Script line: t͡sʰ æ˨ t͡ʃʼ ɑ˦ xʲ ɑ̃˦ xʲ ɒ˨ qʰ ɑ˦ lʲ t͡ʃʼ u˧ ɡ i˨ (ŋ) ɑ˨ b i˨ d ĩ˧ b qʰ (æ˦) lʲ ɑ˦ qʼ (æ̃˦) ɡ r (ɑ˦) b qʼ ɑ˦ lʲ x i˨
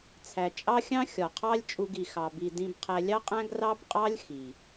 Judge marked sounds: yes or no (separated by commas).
no, no, yes, yes